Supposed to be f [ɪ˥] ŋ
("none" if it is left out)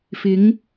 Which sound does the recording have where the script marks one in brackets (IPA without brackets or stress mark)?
ɪ˨˧